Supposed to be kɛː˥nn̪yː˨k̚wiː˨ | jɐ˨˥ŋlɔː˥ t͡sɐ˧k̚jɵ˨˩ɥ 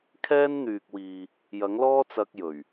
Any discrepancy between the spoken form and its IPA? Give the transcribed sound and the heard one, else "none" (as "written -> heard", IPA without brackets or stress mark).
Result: k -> kʰ